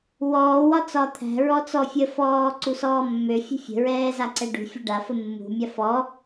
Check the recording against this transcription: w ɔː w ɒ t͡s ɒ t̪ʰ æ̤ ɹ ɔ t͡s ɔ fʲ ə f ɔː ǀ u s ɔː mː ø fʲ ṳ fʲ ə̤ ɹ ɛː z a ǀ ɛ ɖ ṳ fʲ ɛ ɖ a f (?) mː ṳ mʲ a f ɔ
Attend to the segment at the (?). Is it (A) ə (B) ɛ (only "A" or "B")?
A